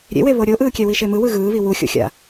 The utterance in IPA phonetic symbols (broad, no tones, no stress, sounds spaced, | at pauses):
ɾʲ ḛ w e β o ɾʲ o ʔ ɯː kʲ ɛ w i ʃ e m ɯ w ɯ ɣ ɯː β i w u xʲ o̰ xʲ a̰